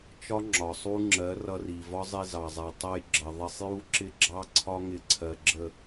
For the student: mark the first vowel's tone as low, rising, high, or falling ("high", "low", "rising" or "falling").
high